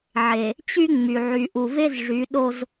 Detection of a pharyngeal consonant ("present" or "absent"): present